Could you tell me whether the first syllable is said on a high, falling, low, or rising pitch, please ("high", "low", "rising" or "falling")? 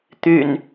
low